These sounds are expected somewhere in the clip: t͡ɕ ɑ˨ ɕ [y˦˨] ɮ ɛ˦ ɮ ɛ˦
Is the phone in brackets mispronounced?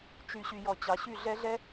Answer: no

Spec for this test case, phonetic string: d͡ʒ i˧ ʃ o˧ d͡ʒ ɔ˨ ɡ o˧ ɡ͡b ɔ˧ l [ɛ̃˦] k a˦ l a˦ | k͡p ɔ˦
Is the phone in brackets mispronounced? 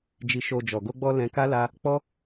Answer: yes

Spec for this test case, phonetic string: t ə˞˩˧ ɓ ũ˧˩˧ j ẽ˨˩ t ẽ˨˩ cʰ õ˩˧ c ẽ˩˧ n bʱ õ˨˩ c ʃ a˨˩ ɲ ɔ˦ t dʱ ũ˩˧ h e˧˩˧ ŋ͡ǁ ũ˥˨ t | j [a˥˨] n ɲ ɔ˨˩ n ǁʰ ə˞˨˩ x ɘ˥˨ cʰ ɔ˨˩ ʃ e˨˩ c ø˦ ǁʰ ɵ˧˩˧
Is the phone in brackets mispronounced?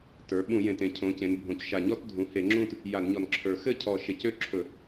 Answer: yes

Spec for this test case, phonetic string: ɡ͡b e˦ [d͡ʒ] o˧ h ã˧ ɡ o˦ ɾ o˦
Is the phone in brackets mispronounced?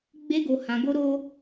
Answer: yes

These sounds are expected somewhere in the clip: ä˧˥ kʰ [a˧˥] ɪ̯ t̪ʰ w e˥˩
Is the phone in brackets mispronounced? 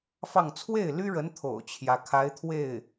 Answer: no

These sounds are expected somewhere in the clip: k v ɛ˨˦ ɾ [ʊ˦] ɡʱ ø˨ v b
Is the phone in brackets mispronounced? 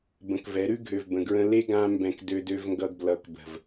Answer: yes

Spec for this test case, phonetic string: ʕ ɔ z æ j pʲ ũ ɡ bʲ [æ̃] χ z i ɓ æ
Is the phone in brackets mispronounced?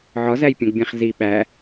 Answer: no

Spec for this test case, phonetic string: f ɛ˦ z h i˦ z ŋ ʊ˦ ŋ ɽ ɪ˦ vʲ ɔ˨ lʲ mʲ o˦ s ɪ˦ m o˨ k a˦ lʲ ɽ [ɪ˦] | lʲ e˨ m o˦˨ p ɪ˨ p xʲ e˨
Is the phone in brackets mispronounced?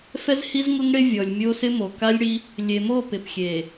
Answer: yes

